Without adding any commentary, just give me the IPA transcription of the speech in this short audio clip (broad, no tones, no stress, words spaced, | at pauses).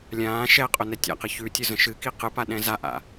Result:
lʲãː ʃɛqʼʊ nɛtʲa̰qɨ çʉtʲʊ zə̃ʃɨki qɨpa ɗɛ̃zaʔa̰